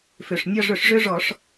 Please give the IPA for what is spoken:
f ø˩ ʂ nʲ ɒ˦˨ ʐ ɵ˧˩˧ ʂ ʐ ø˦ ʐ ɔ˧˩˧ ʂ

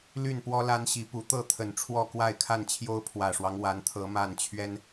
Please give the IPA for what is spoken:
l y˥˨ n p w ɔ˦ l a˦ n ɕ i˨˦ p u˨˦ t̪ ɤ˥˨ t̪ʰ ə˨˩ n ʈ͡ʂʰ w ɔ˥˨ k w a˥˨ ɪ̯ kʰ a˥˨ n t͡ɕʰ j o˦ ʊ̯ pʰ w ä˨˩ ʂ w ɑ˦ ŋ w a˨˦ n t̪ʰ ɤ˨˦ m a˥˨ n t͡ɕʰ ɥ ɛ˦ n

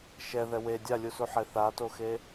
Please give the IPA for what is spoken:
ʃ ɛ ð ɛ w e dʲ a lʲ u s u ħ e θ a t o x e

